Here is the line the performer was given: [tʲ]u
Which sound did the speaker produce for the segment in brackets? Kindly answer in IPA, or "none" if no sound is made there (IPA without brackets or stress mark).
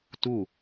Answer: t